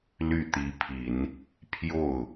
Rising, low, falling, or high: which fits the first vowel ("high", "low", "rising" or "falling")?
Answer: falling